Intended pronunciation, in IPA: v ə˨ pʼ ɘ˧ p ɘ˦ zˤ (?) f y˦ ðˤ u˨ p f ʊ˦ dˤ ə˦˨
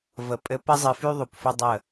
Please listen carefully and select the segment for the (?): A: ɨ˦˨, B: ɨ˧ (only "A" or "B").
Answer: B